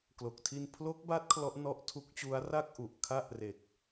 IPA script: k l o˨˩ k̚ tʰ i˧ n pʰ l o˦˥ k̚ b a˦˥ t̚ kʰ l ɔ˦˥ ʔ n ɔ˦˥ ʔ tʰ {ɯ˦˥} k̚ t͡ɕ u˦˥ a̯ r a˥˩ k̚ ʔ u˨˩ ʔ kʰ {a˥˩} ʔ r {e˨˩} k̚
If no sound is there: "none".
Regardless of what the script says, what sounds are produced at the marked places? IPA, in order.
u˦˥, a˥˩, e˨˩

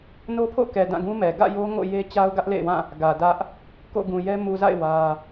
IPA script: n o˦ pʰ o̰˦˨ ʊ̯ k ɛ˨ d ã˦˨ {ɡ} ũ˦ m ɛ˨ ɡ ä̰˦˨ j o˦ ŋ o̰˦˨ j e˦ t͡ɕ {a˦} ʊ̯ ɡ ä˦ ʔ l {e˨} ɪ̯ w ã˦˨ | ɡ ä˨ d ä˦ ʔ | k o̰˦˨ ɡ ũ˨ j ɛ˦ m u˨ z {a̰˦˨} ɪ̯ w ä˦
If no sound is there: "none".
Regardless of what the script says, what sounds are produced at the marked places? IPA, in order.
ɡ, a˦, ḛ˦˨, a̰˦˨

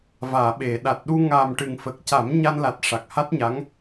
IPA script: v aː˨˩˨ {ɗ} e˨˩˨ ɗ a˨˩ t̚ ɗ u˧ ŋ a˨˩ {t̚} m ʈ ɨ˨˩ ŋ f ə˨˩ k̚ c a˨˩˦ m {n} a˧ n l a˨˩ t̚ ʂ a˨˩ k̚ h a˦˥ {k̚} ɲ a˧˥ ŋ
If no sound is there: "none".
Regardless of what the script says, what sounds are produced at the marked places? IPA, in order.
ɓ, none, ɲ, t̚

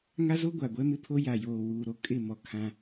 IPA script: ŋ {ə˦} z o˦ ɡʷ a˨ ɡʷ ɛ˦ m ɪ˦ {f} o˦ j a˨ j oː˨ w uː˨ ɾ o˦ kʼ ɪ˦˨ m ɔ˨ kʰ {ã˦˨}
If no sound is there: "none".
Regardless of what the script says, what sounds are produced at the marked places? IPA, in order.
a˦, pʰ, ã˦

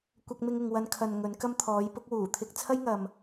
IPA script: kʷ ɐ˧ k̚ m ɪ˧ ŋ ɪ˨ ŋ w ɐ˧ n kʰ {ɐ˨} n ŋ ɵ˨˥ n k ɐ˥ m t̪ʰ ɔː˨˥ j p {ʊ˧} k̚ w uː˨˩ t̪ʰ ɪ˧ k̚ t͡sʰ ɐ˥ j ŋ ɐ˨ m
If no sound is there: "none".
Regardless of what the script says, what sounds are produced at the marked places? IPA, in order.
ɐ˨, ʊ˥

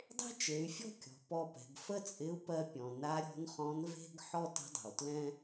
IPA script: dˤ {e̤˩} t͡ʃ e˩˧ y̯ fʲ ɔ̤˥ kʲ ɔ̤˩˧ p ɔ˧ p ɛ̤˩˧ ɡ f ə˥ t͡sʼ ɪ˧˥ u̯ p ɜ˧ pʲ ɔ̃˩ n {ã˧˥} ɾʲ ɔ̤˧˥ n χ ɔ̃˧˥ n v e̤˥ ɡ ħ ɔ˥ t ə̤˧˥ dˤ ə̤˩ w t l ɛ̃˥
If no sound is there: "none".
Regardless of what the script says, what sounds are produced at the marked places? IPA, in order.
e̤˥, a˧˥

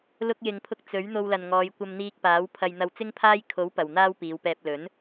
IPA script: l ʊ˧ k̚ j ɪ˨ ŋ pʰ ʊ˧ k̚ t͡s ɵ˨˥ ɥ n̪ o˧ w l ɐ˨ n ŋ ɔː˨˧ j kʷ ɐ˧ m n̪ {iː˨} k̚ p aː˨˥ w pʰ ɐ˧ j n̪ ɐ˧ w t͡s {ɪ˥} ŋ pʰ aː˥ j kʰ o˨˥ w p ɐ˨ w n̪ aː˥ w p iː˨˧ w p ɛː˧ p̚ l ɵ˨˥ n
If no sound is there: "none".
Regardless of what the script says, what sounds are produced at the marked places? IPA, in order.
iː˧, ɪ˥

